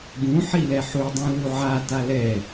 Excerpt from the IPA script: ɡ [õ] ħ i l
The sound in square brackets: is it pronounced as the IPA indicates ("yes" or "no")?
no